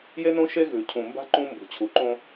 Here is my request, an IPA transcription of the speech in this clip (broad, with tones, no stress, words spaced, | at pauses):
je˦nõ˦ ʃe˦ɣʉ˨cʰũ˨mba̤˦ ǃũ˦ mbṳ˨t͡ɕʰu˨ǃõ˦